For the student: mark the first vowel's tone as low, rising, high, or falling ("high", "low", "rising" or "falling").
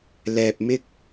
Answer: low